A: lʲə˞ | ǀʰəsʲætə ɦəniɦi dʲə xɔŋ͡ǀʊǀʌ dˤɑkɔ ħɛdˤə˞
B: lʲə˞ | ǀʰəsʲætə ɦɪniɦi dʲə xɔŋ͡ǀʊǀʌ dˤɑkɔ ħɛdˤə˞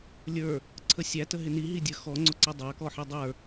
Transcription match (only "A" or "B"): B